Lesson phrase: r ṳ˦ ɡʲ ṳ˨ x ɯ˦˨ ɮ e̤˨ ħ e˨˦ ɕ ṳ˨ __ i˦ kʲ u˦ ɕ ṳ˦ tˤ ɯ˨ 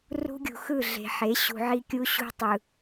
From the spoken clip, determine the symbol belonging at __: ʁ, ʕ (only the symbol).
ʕ